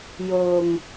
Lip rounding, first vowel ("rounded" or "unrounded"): rounded